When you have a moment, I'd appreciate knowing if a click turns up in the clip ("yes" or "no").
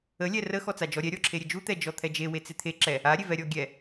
yes